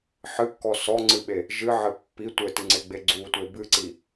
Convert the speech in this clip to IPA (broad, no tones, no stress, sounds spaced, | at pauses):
ħ ɨ kː ɔ s ɔ ŋ͡ǀ ɨ ɓ e | ʒ ɨ ʕ ɘ pː i tʷ ɘ t ɨ ŋ͡ǀ e ɡ͡b e ɡ͡ǀ u tʷ e b ɨ ǀ i